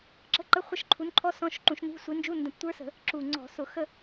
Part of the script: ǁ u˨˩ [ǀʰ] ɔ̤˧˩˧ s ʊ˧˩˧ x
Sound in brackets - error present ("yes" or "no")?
yes